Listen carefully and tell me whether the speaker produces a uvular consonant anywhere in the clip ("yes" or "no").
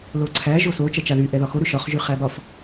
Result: yes